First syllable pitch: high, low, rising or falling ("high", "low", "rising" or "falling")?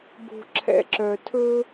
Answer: low